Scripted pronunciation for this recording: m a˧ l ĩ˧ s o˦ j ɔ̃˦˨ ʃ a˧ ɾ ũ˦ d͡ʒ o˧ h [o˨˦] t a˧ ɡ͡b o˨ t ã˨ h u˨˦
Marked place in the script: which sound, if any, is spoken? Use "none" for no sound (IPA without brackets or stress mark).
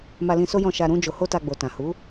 o˦